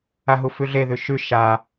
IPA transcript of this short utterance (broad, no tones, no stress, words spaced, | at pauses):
aɦufʉɮe ðʉʃʉ ʃa